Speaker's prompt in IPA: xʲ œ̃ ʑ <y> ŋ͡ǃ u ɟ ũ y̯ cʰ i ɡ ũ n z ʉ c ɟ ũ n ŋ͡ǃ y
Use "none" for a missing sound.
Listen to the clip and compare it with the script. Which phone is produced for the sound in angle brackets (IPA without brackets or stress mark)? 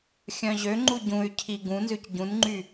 ø